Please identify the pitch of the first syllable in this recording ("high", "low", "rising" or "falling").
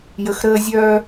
low